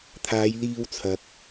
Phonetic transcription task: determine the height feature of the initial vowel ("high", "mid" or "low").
low